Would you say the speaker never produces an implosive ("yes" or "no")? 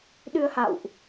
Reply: no